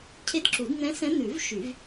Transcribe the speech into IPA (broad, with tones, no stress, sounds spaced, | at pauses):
cʰ e˧˥ d ǁ u˨˩˦ d n̪ ɛ̃˧˥ s ɛ̃˧˥ n̪ ʉ˨˩˦ v ʃ y˨˩˦ v